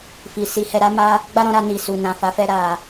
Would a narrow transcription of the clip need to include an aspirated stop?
no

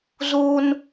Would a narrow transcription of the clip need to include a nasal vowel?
no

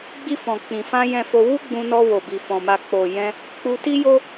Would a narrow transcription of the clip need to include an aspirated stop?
no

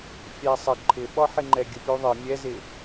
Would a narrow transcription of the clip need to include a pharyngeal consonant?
yes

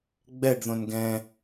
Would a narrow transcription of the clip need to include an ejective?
no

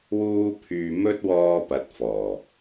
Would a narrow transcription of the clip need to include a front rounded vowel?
yes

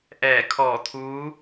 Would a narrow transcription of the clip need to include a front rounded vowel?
no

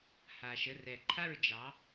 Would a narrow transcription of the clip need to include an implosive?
no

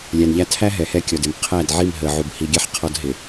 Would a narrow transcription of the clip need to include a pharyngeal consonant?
yes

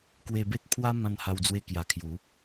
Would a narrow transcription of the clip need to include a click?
no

